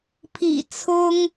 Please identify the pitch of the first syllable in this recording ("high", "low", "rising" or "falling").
low